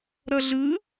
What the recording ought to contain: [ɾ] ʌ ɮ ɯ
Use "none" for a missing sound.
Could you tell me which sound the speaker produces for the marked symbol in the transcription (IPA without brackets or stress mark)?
ɾ